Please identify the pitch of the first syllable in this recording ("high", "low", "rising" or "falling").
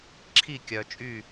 falling